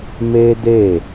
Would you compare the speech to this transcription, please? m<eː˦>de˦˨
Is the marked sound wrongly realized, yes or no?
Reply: no